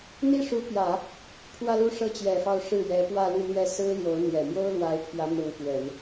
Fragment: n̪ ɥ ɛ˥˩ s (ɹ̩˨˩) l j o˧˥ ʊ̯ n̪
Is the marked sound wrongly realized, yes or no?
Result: yes